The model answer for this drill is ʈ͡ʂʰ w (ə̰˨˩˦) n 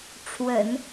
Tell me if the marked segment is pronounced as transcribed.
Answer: yes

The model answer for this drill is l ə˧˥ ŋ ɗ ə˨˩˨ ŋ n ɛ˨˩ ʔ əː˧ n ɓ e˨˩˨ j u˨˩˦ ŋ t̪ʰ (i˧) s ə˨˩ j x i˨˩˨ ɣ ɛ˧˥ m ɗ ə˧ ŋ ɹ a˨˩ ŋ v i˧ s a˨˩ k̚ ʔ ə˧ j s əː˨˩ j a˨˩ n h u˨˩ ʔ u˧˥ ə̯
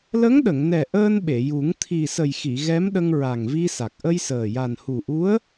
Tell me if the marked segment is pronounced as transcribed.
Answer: no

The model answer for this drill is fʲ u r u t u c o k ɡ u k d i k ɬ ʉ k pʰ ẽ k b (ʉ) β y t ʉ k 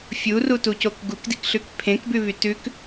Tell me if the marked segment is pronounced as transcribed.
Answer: yes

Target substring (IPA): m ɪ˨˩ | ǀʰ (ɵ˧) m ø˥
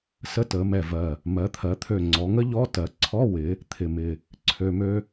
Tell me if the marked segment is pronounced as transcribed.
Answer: no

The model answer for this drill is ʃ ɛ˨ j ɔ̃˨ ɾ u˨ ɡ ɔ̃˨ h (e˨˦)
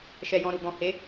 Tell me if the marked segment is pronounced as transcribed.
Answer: yes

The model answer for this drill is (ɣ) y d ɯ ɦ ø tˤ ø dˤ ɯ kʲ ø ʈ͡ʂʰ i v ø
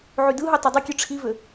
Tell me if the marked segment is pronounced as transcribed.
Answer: no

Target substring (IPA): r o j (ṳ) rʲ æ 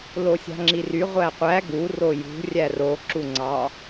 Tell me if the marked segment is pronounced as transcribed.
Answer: yes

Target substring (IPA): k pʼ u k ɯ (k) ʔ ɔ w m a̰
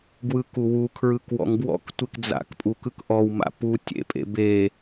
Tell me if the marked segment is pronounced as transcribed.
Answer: yes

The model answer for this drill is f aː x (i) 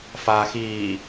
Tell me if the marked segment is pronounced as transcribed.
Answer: no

